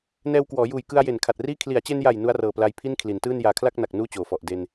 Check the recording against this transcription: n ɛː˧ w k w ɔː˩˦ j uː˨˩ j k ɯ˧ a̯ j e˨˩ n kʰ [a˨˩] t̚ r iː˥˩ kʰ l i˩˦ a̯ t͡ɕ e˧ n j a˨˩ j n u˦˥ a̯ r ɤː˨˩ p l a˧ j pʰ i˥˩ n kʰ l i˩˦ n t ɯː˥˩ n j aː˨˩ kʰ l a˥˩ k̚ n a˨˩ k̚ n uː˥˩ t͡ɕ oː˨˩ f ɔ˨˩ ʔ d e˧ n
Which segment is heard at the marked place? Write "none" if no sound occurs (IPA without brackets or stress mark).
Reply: a˨˩